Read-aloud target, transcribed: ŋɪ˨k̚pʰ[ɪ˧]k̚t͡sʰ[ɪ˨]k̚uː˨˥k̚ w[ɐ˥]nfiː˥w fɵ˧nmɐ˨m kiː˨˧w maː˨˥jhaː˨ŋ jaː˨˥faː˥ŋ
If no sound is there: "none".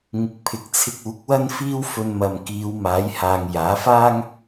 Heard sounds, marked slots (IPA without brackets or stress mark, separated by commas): ɪ˨, ɪ˧, ɐ˥